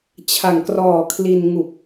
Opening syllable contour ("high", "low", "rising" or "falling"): low